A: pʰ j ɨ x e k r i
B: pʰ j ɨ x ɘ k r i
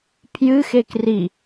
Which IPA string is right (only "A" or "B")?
A